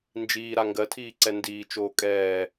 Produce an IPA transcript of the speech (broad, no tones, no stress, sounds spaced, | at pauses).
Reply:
n d͡ʒ iː ɾ a ŋ ɡ ɜ tʰ iː ǀ ɛ n d iː t͡ʃ oː kʼ ɛː